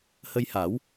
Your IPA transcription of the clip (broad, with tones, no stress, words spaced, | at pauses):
hə˧jha˨˩˦w